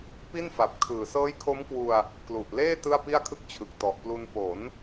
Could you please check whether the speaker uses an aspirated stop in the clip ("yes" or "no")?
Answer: yes